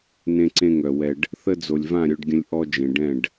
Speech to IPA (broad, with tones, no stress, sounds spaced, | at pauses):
n ẽ˧ ǀ ẽ˧ ŋ œ˨ w ɛ˧ ɖ | θ ə˧ d͡z o˨ lʲ v ã˦˨ ɾʲ œ˧ ɖ ɡʲ ə̃˧ lʲ ʔ ɔ˧ d͡ʒ ẽ˨ ɖ ɛ̃˦˨ ɖ